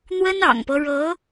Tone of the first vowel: high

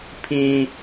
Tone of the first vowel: high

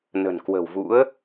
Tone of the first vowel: low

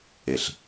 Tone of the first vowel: low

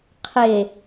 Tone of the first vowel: low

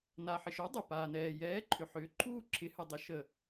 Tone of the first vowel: low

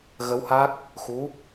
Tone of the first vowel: rising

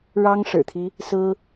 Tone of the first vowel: high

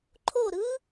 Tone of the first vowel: falling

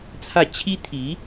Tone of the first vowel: falling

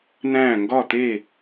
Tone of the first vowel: falling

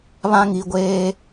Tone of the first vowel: high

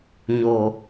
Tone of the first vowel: low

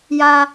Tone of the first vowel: high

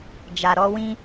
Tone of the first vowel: low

